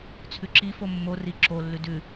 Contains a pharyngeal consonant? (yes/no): no